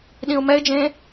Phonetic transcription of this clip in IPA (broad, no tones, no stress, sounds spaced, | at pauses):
ɗ ĩ ʊ̯ m ɛ ɪ̯ d͡ʒ ẽ